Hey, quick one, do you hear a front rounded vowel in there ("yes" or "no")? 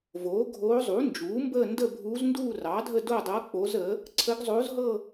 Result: no